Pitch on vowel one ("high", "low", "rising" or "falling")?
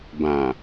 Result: low